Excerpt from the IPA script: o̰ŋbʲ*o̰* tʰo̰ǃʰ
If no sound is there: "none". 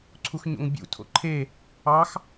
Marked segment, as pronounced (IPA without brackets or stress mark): ṵ